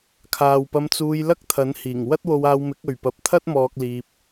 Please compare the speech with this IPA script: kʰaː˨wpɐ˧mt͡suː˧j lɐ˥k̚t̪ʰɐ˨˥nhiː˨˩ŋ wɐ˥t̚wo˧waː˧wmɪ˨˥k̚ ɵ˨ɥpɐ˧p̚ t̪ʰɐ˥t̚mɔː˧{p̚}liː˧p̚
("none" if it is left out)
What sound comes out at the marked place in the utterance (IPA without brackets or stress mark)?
k̚